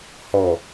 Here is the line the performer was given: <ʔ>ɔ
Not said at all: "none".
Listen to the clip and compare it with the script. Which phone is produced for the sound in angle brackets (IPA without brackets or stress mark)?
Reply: h